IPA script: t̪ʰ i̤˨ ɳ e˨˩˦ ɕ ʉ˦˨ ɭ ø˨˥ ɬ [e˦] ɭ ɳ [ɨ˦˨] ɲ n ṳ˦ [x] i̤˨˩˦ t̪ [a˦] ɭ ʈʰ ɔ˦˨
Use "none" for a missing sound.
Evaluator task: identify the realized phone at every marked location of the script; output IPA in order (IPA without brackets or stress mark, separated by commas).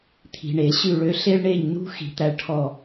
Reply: e˦, e˦˨, x, æ˦